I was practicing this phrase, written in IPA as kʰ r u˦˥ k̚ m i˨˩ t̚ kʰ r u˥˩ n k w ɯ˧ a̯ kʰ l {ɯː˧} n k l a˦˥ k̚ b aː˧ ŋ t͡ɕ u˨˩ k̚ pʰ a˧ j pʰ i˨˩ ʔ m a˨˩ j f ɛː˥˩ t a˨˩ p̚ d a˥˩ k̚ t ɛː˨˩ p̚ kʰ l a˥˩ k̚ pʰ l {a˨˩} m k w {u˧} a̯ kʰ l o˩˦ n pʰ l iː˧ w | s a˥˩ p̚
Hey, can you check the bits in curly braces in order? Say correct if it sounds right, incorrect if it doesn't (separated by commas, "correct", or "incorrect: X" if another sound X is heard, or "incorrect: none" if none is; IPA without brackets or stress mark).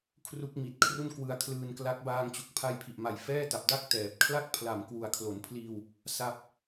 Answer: correct, correct, incorrect: u˨˩